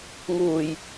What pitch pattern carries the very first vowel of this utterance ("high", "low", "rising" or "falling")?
low